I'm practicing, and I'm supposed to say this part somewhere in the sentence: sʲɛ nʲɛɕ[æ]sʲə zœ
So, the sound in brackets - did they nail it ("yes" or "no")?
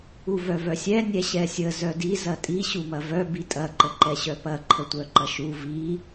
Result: no